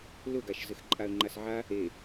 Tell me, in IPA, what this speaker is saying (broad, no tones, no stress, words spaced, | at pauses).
lʊɡaʃ zɘxǃʼaə̯ŋ͡ǃasʕa | e